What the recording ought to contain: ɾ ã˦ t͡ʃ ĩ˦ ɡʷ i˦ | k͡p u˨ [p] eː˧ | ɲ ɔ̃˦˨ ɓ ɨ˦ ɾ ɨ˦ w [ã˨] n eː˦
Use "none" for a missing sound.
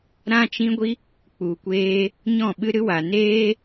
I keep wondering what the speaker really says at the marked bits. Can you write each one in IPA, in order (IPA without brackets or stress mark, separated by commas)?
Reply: kʷ, a˨